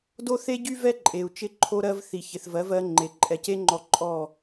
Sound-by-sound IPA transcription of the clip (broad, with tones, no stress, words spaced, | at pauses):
do˦θe˦ɟy˦ vɛ˦ǃʼe˨u̯ t͡ʃɪ˧ ǃʰo˦ɾɜ˦v θi˨çɪ˨θvɜ˨˦vɜ˧ ŋ͡ǃe˨ǃʼɛ˨˦ce˦ŋ͡ǃɔ˧ ǃʼɔ˦˨